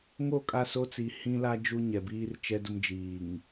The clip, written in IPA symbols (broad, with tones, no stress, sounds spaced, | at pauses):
ŋ o˦˨ kʼ a˦˨ s o˦ t͡s i˨ h ĩ˦ l a˦ d͡ʒ u˦ ɲ ɛ˨ b iː˦ r t͡ʃ ɛ˦ d ʊ˦ m d͡ʒ iː˨ ŋ